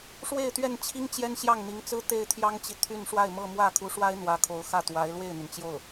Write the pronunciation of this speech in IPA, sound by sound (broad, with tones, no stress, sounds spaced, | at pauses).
ʂ w e˥˧ ɪ̯ t̪ ɥ ɛ˥˩ n t͡ɕʰ i˥ ŋ t͡ɕ j ɛ˥ n ɕ j ɑ˥˩ ŋ n̪ i˧˥ ŋ t͡s ɹ̩˥ t̪ e˥˩ ɪ̯ t̪ʰ j ɑ˥ ŋ t͡ɕ i˨ t̪ʰ y˥˧ n ʂ w a˥˧ ɪ̯ m ɤ˥˧ m w ä˥˩ kʰ u˧˥ ʂ w a˥ ɪ̯ n̪ w ä˧˥ kʰ o˧˥ ʊ̯ x ä˥˩ t̪ w a˧˥ ɪ̯ l w e˥˩ ɪ̯ n̪ y˩ n t͡ɕ j o˥˩ ʊ̯